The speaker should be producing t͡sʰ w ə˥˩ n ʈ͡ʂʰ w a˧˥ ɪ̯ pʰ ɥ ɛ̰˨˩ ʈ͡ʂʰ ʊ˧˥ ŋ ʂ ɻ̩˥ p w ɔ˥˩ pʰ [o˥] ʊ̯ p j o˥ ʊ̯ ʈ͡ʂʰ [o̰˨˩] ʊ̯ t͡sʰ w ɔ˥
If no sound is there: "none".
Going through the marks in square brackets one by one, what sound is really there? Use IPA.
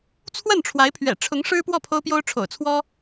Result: o˥, o̰˨˩

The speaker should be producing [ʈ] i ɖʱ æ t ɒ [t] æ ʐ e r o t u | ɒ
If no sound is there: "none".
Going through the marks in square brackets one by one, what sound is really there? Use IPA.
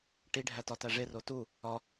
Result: ʈ, t

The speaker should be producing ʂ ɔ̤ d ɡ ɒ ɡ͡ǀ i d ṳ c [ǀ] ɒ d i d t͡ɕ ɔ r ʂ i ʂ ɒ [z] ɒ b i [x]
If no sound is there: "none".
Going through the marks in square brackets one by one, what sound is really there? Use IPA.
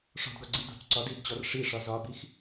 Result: ǀ, z, x

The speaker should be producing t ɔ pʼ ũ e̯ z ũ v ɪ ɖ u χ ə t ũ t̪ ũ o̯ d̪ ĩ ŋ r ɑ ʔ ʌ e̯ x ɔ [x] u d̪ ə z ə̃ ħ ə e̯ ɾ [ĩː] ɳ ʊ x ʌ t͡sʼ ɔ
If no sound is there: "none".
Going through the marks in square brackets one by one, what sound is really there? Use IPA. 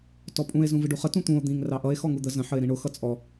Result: ŋ, ĩ

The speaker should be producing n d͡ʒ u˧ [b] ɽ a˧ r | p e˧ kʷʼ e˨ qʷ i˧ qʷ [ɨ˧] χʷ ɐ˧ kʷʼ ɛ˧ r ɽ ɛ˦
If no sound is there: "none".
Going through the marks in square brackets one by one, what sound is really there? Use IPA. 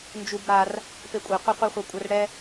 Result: b, i˧

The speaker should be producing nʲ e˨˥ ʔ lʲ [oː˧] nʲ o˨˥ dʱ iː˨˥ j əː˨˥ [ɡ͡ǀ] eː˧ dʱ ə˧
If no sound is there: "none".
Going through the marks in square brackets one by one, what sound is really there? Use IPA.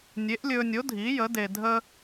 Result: ɵː˧, d

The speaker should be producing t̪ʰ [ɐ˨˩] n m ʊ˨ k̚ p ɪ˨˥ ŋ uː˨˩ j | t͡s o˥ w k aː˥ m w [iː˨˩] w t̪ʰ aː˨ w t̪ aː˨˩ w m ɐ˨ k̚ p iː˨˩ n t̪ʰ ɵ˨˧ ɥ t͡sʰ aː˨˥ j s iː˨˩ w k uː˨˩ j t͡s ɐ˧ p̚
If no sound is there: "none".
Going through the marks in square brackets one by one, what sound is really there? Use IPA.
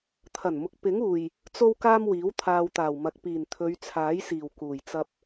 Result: ɐ˨˩, iː˨˥

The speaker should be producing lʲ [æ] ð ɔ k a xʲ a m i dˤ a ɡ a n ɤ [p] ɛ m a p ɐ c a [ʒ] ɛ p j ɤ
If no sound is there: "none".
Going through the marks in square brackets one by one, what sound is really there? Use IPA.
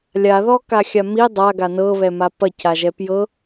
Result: a, β, ʒ

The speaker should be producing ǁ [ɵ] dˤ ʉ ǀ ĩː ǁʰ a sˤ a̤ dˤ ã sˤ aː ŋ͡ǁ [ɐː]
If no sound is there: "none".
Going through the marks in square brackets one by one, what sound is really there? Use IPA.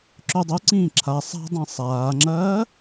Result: ɵ, ɐː

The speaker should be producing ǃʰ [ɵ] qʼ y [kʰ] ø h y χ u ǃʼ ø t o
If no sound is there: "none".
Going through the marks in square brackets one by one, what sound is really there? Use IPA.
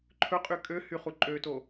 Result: ɵ, kʼ

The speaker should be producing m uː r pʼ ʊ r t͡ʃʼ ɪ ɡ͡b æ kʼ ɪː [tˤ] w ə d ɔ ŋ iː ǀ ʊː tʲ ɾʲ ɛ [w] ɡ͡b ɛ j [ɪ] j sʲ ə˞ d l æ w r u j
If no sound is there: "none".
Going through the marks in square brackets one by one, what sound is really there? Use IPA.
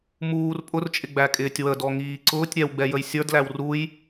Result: tʲ, w, ə

